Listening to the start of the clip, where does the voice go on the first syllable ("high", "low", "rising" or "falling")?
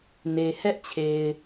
low